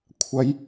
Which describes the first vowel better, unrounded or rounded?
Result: unrounded